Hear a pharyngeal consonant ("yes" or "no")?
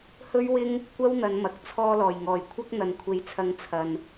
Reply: no